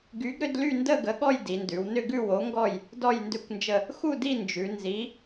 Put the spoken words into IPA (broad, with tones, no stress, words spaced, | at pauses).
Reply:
ɡy˨˥ɡɾʏ˥˧dly˥˧ndə˥˧ ɡə˨˥ɠɔ˥˧j di˩˧ndʉ˩˧wnʏ˥˧ɡʉ˥˧ wo˨˥ŋɡɔ˥˧j | dɔ˥˧jndʏ˥˧kʷnd͡ʒə˥˧ | xu˥˧di˥˧nd͡ʒʉ˩˧ nzi˨˥